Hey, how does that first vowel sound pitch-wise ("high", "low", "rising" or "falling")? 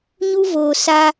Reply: high